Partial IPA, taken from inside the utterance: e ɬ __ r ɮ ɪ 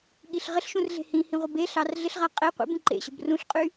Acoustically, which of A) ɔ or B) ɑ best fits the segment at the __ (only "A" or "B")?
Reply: B